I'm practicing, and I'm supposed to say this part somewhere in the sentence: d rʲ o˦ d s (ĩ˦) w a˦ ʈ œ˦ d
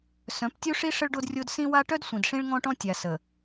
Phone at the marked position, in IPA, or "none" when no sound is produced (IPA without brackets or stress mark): ĩ˦